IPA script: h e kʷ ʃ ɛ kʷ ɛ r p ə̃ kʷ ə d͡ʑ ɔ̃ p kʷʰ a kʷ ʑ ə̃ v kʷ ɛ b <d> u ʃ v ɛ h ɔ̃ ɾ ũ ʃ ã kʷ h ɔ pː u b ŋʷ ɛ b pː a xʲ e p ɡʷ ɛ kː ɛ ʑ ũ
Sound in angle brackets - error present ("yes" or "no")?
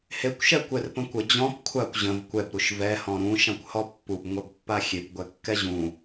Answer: yes